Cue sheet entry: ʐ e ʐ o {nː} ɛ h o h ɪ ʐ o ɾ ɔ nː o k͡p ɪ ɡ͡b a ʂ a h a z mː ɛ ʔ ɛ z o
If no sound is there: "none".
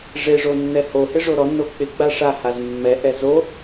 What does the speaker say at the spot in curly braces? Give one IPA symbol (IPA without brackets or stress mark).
nː